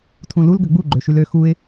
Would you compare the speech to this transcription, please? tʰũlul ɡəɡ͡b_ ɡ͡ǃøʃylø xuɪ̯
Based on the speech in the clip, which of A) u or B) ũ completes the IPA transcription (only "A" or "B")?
A